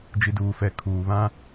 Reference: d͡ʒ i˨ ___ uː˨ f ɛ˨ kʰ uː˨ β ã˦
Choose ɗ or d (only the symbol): d